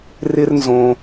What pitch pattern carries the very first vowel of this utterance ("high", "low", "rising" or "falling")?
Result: high